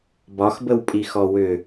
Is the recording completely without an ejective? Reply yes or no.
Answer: no